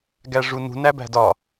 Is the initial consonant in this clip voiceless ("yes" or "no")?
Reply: no